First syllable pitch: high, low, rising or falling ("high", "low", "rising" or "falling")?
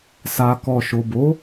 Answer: low